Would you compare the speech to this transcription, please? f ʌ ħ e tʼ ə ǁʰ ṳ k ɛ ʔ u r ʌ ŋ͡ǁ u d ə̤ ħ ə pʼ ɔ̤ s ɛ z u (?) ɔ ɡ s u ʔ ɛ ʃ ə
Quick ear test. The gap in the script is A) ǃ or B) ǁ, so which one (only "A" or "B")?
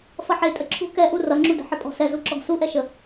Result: B